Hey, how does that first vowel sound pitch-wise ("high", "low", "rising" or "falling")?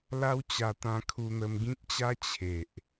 high